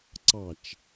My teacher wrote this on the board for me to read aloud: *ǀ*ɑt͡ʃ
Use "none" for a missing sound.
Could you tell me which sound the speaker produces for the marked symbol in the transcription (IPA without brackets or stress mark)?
ǀ